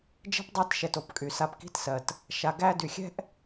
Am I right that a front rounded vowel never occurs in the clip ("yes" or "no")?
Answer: no